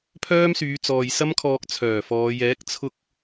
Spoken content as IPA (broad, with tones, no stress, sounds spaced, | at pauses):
pʰ œː˥ m s yː˨˧ t͡s ɔː˨ j s ɐ˥ m kʰ ɔː˧ k̚ t͡sʰ œː˨˩ f ɔː˨˧ j ɛː˨˥ k̚ t͡sʰ ʊ˥ k̚